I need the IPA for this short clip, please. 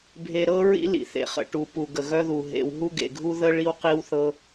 bʱe˩ɾɤ˧ ɹḭ˧ lḭ˩θḛ˩χə̰˩ ʈu˩pu˩ ɡə˩ɣœ˧ðu˩ ɦḛ˩w ɦu˧ɡḛ˩ɡʱu˧ ðə˧ ɭi˧wqi˧wθɤ˧

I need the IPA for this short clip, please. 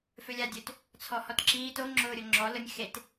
følʲadʲøt | t͡sʰɔhɔtǁiːt o ŋ͡ǁʊːɾʲoŋ͡ǁɔ lʊnʲ xet

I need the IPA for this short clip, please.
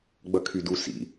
ɡ͡bʌkʰydu sḭ

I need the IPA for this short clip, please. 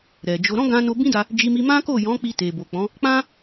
ɾɛ˨d͡ʒo˧ ɾɔ̃˦ɡã˧no˧ bĩ˦da˧ | d͡ʒi˧mi˧ mã˦ko˦˨jɔ̃˨˦ k͡pi˧te˨bo˨k͡pɔ̃˨˦ | k͡pã˦

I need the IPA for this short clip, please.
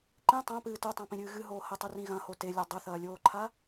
ǃĩ tˤãpɨː totˤãpĩɾʲɨː ɣɨɦoː hɐtˤurĩ ɣɐ̃ho telʲo dˤɵθɐːlʲoːǃʰa

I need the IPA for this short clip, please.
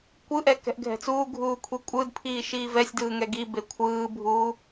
kʷɯʔɛ kɛ̤ʔɡʱɛ̤t͡suːɡʱuː kʷʰikʷʼɯdpʰiː ʃiːvɛsʲdɯː ŋɛɡibe kʷʰɯːbʱuː

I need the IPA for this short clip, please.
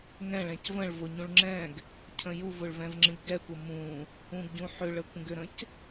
ŋɛ̃ɭɛ̃c və̃ɭ vʊɲũɭ ŋ͡ǁɛ̃ɡ | cʰə̃juvʊɭ vɛ̃vŋ͡ǁə̃ʎɡɛkʷə mũ | ũɡɟũħʏɭə kʷə̃ɡʏɾə̃c

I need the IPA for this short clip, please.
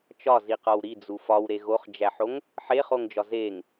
t͡ʃɒziqɒw ɾid͡zu fɒwɾe ɣoχd͡ʒæħoŋ | ħeχoŋd͡ʒɒ zeŋ

